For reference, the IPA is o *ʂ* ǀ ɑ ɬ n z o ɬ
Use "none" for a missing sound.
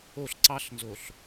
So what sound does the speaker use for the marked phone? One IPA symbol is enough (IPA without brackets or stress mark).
ɬ